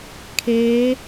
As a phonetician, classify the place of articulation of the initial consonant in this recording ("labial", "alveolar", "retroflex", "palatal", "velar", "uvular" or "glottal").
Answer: velar